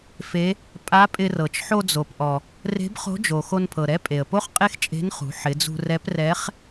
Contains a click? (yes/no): no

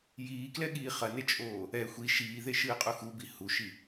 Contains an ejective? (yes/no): yes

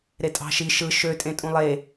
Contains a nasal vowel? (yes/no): yes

